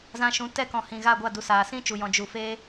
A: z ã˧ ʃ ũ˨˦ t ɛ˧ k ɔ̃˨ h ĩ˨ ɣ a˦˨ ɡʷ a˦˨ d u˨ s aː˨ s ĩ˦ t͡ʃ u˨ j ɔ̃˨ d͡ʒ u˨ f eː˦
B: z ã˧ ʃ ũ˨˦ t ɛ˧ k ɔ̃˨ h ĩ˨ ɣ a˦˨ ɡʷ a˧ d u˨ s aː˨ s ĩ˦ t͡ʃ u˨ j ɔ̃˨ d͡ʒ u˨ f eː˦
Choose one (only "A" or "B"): A